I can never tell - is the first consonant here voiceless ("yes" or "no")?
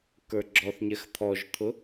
yes